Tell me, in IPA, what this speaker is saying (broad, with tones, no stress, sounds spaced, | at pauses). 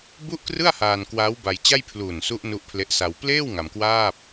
b u˥˩ ʔ k r ɯ˥˩ a̯ h aː˧ n k w aː˦˥ w b a˧ j t͡ɕ a˥˩ j pʰ l uː˨˩ n s u˦˥ ʔ n u˦˥ ʔ pʰ l e˦˥ ʔ s a˧ w p l eː˥˩ w ŋ a˧ m k w aː˥˩ p̚